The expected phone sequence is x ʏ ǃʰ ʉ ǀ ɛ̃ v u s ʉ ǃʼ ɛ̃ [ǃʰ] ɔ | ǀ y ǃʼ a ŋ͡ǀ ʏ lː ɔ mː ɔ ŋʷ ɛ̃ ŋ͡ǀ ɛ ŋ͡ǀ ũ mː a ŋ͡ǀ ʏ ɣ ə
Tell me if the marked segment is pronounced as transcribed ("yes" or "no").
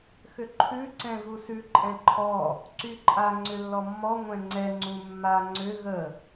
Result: yes